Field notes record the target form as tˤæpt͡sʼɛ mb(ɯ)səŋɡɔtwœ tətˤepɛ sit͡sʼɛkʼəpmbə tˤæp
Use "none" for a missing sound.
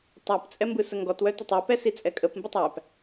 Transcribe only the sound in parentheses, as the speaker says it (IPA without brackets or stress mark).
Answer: ɯ